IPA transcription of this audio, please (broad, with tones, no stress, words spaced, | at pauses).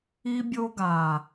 i˦bʲo˦ɡa˨